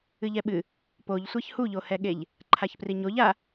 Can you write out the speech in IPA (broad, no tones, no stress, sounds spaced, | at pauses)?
ɨ ʎ ɛ ɓ ɨ | p o ʎ sʷ ɛ ç h u ʎ o h ɛ ɠ e ʎ | ǃʰ a ç p r i ɲ o ʎ a